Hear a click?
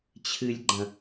yes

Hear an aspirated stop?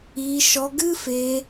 no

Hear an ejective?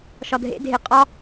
yes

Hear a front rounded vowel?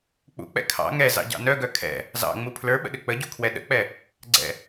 yes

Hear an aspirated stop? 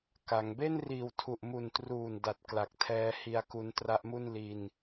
yes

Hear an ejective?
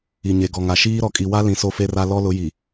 yes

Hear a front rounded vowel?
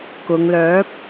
yes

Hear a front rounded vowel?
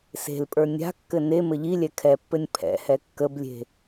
no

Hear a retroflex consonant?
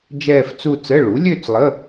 yes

